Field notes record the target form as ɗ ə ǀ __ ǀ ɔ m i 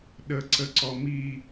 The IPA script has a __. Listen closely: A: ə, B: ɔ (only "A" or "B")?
A